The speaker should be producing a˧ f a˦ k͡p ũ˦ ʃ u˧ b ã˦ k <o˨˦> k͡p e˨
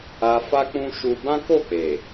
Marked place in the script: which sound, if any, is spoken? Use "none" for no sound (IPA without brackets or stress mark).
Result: o˦˨